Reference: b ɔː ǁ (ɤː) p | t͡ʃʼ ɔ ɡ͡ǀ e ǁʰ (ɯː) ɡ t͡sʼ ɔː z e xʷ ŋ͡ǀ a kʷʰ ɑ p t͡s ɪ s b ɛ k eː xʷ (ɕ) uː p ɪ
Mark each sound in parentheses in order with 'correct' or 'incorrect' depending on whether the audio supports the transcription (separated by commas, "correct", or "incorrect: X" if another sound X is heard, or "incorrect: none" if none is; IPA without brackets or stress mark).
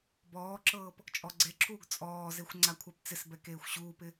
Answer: correct, incorrect: uː, correct